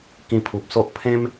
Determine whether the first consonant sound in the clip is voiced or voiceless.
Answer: voiceless